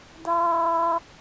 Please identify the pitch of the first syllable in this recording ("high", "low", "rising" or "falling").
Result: high